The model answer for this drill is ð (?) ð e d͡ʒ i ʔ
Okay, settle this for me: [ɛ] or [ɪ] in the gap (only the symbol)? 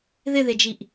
ɪ